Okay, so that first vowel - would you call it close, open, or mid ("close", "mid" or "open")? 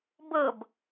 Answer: mid